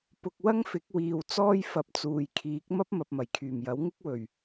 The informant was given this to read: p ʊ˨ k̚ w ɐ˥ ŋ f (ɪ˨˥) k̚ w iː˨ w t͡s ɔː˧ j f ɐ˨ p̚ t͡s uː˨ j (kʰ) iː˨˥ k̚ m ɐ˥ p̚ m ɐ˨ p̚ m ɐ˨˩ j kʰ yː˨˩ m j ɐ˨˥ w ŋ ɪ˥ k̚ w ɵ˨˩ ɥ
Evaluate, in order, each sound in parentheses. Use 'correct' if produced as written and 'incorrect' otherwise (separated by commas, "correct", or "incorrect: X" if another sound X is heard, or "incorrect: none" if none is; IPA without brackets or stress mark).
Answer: correct, correct